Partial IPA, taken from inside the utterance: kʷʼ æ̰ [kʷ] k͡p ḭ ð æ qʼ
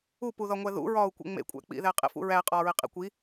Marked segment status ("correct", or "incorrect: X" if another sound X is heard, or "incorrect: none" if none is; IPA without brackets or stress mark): incorrect: none